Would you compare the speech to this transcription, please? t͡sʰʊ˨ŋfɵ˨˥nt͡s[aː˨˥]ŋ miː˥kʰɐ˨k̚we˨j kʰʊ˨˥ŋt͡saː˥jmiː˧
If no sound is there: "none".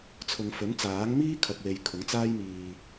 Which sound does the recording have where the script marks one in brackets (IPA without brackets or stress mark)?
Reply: aː˨˥